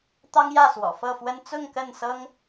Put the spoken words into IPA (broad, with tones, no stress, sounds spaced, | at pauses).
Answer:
t̪ ɑ˦ ŋ j ä˥˨ s w ɔ̰˨˩ f ɤ˥˨ f w ə˦ n t͡s ʊ˥˨ ŋ k ə˥˨ n s ɤ˦ ŋ